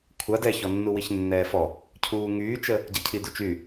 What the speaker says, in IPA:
kʷʰa dɛçɔnːu wiçnːɛːfɔ | cʰuːŋyːt͡ʃə | ɟacʰidut͡ʃy

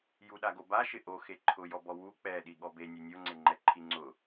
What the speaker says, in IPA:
juɗaɡoba ʃɪʔoxe ǃʰʊjɔbɔ wu k͡pɛɗi ɠɔbe nʲenʲoŋ͡ǀeŋ͡ǃɛ ǃʰiŋ͡ǀʊ

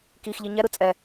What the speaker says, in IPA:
kixʎi ɲɛɾɯ t͡sʼɛ

